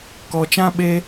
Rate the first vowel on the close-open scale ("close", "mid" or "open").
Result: mid